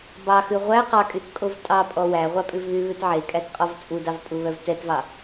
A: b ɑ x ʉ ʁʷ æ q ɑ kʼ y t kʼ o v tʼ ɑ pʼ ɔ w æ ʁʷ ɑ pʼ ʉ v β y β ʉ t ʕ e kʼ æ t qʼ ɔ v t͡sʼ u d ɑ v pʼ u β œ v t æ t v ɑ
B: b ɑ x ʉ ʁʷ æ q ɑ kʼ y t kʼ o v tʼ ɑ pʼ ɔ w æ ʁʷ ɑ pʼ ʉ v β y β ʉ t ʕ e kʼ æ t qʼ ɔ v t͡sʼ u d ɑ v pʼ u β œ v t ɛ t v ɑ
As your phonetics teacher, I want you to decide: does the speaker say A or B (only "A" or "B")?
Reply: B